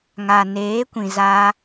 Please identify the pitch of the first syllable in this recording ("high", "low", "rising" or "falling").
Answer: low